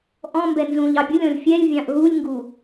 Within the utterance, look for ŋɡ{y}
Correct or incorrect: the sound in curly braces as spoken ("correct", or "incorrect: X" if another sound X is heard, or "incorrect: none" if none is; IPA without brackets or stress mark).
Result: incorrect: u